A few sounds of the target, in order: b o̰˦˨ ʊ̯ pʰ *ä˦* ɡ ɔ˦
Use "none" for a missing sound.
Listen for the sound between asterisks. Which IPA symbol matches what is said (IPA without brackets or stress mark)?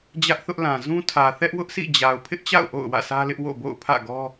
ä̰˦˨